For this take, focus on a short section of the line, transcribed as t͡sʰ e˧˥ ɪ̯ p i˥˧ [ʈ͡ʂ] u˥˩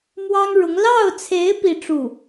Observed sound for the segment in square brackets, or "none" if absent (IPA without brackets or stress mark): ʈ͡ʂ